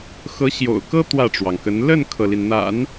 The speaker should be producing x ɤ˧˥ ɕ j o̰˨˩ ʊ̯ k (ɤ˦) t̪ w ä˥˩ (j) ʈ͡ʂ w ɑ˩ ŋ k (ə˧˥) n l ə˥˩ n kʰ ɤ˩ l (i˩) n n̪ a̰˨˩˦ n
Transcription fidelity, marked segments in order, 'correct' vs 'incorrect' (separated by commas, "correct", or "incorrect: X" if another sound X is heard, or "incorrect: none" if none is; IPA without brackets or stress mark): incorrect: ɤ˥, incorrect: none, correct, correct